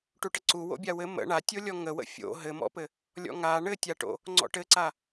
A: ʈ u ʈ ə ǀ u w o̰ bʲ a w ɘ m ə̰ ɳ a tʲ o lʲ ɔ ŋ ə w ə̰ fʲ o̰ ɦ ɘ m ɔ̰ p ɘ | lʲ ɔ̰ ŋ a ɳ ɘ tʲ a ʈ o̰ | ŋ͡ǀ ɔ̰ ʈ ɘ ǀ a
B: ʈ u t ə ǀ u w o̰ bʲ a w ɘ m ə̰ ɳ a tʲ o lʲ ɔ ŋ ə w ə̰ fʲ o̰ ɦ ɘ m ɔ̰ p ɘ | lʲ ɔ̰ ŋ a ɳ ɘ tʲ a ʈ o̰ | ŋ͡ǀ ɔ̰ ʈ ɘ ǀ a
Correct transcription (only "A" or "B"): A